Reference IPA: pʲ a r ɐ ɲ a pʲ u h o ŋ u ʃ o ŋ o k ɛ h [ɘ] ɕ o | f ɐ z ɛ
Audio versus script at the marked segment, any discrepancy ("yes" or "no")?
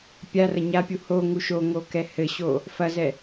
no